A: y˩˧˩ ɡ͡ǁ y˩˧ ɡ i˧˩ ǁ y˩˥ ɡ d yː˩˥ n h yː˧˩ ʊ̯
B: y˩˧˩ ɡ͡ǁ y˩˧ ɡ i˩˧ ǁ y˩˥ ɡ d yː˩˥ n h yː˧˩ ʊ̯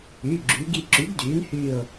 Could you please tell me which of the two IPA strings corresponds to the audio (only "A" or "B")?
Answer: A